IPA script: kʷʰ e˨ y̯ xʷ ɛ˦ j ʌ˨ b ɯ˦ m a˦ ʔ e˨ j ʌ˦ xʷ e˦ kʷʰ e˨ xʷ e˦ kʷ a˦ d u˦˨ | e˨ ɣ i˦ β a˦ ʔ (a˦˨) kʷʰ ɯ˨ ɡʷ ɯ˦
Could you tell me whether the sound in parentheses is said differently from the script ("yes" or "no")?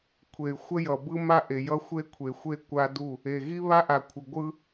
yes